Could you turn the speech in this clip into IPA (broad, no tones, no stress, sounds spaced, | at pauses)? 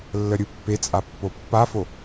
lː ə ɾʲ ɯ pː e t͡sʼ a pː o pː a f o